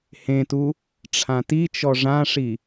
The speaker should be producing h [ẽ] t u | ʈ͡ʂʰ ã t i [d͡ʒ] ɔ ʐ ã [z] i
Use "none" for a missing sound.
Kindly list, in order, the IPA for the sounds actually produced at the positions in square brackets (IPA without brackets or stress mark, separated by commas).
ẽ, t͡ʃ, ʂ